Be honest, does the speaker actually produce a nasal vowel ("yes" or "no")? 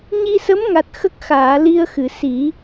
no